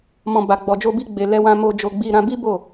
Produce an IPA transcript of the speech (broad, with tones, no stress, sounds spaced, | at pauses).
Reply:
m ɔ̃˨ b a˨ ɡ͡b ɔ˨ d͡ʒ o˧ b i˧ ɡ͡b e˨ l ɛ˧ w ã˧ m o˧ d͡ʒ o˧ ɡ͡b i˧ ɾ ã˧ b i˦ b o˦˨